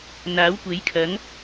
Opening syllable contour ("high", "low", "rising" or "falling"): rising